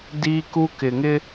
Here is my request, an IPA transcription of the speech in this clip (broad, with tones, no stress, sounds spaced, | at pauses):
d iː˦ k u˦ k ɪ˨ ŋ ɪ˦